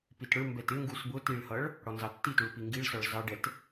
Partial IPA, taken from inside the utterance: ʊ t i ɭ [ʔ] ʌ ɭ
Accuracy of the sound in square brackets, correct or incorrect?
incorrect